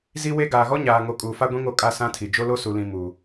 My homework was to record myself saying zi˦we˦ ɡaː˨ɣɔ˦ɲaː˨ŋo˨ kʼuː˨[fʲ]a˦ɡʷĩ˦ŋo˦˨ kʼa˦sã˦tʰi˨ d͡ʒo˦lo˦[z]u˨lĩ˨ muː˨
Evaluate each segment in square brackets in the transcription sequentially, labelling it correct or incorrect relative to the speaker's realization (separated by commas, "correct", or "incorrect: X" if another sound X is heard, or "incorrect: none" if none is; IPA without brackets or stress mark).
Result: incorrect: f, incorrect: s